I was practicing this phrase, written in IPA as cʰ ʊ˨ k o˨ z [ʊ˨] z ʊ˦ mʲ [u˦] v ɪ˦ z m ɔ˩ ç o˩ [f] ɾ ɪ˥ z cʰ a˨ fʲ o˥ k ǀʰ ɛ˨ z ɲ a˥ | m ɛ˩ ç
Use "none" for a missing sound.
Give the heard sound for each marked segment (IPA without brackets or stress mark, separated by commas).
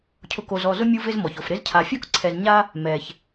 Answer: ɔ˨, u˦, f